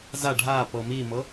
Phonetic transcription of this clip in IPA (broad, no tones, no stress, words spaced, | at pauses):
za ɖʱapɤ mimɤ